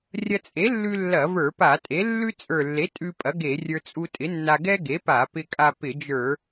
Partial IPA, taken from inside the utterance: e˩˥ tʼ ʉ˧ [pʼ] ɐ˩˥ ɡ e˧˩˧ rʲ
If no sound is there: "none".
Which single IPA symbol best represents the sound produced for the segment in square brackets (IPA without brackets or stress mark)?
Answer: pʼ